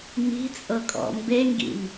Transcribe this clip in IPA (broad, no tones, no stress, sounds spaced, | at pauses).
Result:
m i̤ t͡sʼ ɤ kʼ ɔ̰ m b e ŋ ɡ ḭ m